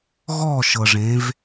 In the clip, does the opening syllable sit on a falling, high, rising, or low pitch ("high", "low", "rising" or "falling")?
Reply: falling